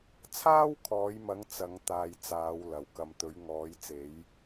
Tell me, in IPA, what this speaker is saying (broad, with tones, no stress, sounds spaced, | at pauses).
t͡sʰ aː˥ w kʰ ɔː˨˧ j m ɐ˨˧ ŋ t͡s ɐ˨˧ ŋ t̪ aː˧ j t͡s aː˨˧ w l ɐ˨ w k ɐ˧ m t̪ ɵ˨˧ ɥ ŋ ɔː˨˧ j t͡s e˨˧ j